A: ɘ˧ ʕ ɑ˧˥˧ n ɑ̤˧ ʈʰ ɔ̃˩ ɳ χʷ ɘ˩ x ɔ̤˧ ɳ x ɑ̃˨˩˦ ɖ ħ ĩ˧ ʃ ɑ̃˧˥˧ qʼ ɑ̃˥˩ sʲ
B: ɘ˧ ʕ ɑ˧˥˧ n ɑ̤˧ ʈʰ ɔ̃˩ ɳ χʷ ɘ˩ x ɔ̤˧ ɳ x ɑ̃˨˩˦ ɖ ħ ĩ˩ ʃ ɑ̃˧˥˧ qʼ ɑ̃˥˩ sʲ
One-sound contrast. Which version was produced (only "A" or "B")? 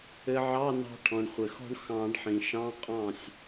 B